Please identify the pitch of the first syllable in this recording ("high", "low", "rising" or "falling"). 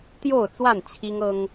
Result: falling